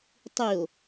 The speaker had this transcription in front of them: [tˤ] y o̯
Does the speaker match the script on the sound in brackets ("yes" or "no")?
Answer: yes